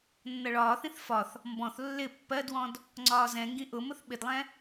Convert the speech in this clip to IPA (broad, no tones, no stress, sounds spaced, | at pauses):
nː ʌ ɭ ɒː θ ĩ θ f ɒ θ | m b ɔ̃ θ lː ɪ pː ɜ d w ɔ̃ d | ŋ͡ǀ ɒː z ɛ̃ ŋ ɡ ĩ ʔ ʊ m ʊ θ ɓ ɪ d lˠ ɛ̃